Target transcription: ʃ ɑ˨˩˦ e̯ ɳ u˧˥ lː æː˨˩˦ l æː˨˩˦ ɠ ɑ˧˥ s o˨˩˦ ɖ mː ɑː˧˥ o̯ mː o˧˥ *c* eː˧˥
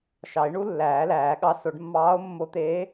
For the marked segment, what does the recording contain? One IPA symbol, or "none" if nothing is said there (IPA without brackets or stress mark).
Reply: t̪